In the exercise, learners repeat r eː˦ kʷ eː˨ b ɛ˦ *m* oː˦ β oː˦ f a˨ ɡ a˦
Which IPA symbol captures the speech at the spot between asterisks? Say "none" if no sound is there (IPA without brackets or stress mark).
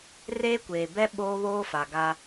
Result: ɓ